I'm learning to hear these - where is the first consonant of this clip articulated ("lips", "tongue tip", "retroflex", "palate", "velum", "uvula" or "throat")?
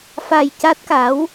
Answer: lips